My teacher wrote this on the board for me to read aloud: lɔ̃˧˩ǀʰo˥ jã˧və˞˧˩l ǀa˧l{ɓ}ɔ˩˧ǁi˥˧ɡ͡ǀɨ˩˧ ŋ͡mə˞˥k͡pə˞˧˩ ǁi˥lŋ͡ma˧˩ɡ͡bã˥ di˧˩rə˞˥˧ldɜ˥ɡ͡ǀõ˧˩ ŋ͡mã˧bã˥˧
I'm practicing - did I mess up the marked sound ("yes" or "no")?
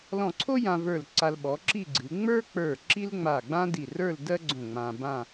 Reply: no